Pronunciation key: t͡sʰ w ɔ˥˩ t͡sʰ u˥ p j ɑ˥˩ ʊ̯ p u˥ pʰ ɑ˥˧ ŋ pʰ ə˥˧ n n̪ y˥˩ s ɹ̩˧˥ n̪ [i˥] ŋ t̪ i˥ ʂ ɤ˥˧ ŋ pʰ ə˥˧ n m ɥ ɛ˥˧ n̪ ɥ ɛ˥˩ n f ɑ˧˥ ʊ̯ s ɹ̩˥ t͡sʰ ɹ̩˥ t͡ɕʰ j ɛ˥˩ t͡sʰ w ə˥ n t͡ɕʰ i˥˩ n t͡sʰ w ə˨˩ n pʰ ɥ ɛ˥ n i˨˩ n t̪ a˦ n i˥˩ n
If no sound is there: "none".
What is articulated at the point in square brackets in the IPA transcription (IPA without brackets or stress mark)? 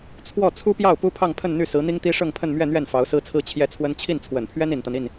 i˥